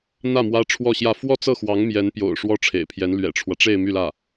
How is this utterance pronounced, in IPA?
n̪ ä˥˩ m w ä˥ ʈ͡ʂʰ w ɔ˥˧ ɕ j ä˥˧ f w ɔ˥˧ t͡s ɤ˥˩ x w ɑ˧˥ ŋ m j ɛ˧˥ n p j o̰˨˩ ʊ̯ ʂ w ɔ˥ ʈ͡ʂʰ ḛ˨˩ ɪ̯ pʰ j ɛ˧˥ n l ɥ ɛ̰˨˩ ʈ͡ʂʰ w ä˦ ʈ͡ʂ e˥˧ ɪ̯ m y˥˧ l ä˥˩

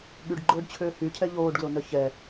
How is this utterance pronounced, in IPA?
ɠ y ɖ ɡ͡ǃ ʊː ɖ t͡ɕʰ ʏː h y cʰ ɛ ʎ oː ɖ ɡ l o n œ ç ɛ

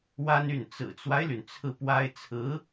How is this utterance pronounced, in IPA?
w a˥ n y˥˩ n t͡s ɹ̩˨˩ t͡s w a˦ ɪ̯ l y˩ n t͡sʰ ɹ̩˥˩ p w a˥ ɪ̯ t͡sʰ ɹ̩˧˥

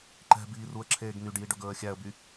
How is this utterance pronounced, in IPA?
ǃ ɛ̤ b iː r u ə̯ ǁʰ eː ɡ n y ɖ j i ɖ ɵ ɡ ɵː ə̯ xʲ æ ə̯ b y

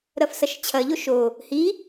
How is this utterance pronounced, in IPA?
ɾ ɐ f s ɐ ʃ t͡ɕʰ ɐ ʎ o ʃ o | h i

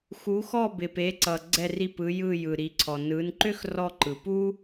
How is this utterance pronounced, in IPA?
x u˨˦ x ɔ˦˨ b ɪ˨ p e˨˦ ǀ ʌ˨ ɡ͡ǀ ɛ˦˨ r i˦˨ p ɯ˨˦ j ɯ˦˨ j ɯ˨ ɾ i˨˦ ǀʰ ɔ˨ n ɯ˨˦ n ǃ ø˥ x r ɔ˦˨ ǃ ɯ˨ p u˥

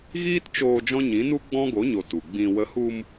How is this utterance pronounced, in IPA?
ɣ iː˦ t t͡ʃ oː˧ d͡ʒ ɔ̃˦ ɲ ĩ˨˦ n u˦ ɡ͡b ɔ̃˦ ɡ o˨˦ ɲ o˨ t u˨ ɡ͡b ĩ˨ w ə˨˦ h u˧ m

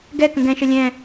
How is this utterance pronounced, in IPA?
ɡ ɛ k ə̃ ɡ ɛ̃ ʃ ə lʲ ɛ̃

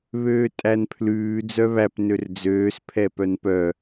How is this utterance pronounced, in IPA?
β øː tʼ æ n pʰ l ʉː d͡z œ β æ p n ø r d͡z øː s pʰ ɛ p œ n p œ

